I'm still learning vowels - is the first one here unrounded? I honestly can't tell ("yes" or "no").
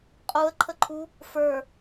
no